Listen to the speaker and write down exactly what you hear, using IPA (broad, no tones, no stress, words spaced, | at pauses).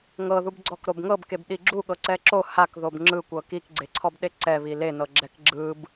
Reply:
ŋɤ ðubɡ͡ǀɔkɾobŋɤb kebɗiɡ͡ǁu ɠɤǀɛǁo hak ðobŋ͡ǁɯkʷɤ kikɡ͡ǀeǀʰɔbɗe ǀɛβi lenɤ ɡ͡ǁɛkɡ͡ǁɯb